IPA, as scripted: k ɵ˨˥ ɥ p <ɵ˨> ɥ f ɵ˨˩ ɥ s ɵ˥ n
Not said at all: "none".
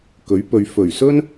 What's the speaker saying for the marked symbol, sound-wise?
ɵ˨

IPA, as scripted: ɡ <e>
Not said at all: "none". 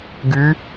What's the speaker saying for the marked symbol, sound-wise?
y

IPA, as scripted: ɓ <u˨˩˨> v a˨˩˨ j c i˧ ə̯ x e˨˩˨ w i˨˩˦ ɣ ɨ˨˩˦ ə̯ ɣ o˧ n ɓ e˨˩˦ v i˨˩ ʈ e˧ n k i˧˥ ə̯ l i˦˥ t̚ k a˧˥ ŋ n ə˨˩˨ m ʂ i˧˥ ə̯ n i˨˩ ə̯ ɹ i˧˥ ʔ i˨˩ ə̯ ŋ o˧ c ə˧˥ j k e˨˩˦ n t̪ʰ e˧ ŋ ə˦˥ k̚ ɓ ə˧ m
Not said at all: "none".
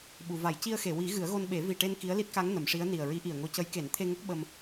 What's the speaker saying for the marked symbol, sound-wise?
u˨˩˨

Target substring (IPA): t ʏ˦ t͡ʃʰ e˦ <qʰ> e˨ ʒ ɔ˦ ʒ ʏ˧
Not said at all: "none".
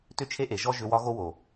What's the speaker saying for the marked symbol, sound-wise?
ʔ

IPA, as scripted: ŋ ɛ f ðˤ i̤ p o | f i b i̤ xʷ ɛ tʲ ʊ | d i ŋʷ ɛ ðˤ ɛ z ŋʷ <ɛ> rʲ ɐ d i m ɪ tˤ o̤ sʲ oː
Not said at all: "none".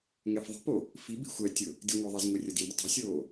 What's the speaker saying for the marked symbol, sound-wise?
e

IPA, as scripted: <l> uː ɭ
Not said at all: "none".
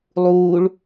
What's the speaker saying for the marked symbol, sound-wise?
lˠ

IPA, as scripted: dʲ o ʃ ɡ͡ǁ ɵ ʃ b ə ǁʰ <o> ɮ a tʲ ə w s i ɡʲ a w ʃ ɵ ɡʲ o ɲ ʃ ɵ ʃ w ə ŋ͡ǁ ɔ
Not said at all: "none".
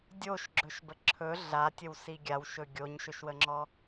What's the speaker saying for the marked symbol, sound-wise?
ɵ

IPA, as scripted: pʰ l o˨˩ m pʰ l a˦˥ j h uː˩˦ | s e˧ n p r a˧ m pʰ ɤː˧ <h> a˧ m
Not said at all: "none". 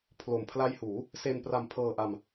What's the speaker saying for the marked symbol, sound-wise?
ʔ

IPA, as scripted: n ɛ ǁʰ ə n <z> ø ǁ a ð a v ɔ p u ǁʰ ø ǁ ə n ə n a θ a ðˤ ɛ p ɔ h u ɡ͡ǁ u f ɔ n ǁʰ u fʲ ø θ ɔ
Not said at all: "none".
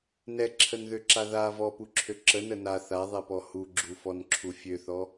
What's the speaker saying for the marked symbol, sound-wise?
ð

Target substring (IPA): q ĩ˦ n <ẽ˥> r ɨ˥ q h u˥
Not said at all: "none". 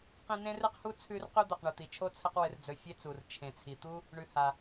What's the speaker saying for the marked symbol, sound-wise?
ẽ˥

